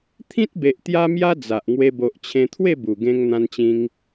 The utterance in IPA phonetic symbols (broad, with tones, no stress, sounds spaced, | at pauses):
t̪ʰ ĩ˦ t̚ b e˨ ʔ t̪ j a˦ m j a˦ d͡z a˨ ʔ ŋ w e˧ b o˨ ʔ t͡ɕʰ ẽ˧ t̪ʰ w e˥˧ b u˨˩ ɡ ẽ˧ ŋ n̪ ã˧ n t͡ɕ ĩ˧ ŋ